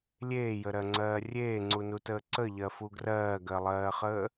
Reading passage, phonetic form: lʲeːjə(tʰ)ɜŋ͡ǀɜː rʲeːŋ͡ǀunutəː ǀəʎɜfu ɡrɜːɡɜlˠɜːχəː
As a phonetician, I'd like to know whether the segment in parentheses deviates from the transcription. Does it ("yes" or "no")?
yes